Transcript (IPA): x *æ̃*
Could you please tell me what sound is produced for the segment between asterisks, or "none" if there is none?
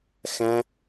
æ̃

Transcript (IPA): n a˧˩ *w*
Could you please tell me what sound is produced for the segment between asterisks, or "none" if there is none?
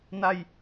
j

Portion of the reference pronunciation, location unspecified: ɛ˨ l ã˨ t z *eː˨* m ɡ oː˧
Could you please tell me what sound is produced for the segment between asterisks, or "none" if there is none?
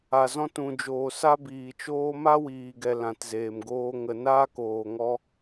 eː˨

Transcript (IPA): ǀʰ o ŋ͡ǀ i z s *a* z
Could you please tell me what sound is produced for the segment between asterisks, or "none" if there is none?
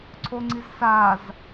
a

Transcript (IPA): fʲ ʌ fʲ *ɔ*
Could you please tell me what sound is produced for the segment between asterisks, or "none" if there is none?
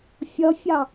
ɑ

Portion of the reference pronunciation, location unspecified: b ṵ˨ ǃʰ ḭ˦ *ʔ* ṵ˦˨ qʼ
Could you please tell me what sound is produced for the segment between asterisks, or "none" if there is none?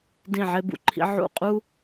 ʕ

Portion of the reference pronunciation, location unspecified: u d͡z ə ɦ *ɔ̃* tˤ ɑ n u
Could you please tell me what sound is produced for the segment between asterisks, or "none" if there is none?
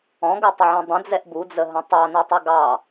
ə̃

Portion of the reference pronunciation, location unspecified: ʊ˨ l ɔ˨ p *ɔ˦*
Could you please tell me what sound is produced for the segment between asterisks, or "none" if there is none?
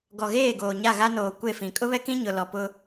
ʊ˦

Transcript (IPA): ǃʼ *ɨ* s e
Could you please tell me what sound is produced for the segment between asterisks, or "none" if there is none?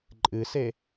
ɨ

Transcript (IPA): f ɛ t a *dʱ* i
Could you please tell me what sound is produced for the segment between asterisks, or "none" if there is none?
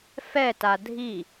dʱ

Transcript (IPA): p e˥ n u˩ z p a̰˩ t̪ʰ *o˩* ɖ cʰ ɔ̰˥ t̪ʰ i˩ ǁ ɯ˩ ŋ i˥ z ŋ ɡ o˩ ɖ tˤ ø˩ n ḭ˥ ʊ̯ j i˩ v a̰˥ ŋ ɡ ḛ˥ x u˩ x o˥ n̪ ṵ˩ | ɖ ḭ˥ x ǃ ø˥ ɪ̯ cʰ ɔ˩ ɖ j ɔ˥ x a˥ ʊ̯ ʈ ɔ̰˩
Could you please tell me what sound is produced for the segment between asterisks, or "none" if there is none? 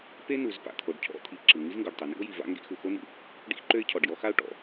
o˩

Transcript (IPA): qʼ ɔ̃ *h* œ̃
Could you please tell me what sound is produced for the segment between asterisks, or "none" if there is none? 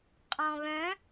β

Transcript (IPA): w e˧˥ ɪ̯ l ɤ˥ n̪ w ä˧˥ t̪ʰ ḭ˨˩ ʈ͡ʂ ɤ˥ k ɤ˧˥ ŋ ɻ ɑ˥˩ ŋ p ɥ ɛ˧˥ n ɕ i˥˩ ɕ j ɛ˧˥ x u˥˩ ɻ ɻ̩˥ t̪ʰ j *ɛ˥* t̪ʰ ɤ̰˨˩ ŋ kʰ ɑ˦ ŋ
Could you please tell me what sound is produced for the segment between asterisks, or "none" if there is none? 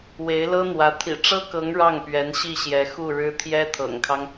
ɛ˥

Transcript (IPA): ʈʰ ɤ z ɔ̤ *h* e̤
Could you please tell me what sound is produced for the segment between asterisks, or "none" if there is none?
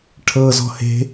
h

